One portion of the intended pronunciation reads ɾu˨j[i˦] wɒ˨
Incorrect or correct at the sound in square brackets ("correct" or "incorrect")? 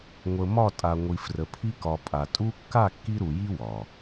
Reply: correct